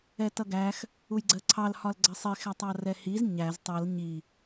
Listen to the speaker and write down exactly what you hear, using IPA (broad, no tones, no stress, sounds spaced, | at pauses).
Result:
ɛ t ʌ ɡ æ x | u j ɡ͡ǀ ɜ ǀʰ ɑ l h ɒ l ɡ͡ǀ ɜ sˤ i x æ tˤ ɑ r ɛ h i z ɲ æ z tˤ ʌ l ɲ i